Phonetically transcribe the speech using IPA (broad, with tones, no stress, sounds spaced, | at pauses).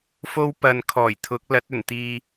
f o˥ w p ɐ˧ n kʰ ɔː˨˩ j t̪ʰ ʊ˨˥ k̚ l ɐ˨˥ t̚ ɵ˨˩ n t̪ iː˨